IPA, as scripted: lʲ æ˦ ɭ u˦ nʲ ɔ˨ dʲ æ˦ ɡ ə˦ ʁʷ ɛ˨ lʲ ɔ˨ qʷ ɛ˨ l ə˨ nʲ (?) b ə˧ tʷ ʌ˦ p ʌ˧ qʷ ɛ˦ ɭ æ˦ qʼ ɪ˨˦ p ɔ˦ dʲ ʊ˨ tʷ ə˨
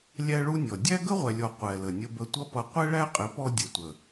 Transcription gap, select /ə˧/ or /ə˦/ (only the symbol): ə˧